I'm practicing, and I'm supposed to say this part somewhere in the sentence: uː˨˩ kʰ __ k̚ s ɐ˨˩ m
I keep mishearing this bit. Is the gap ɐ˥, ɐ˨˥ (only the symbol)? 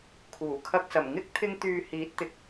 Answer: ɐ˥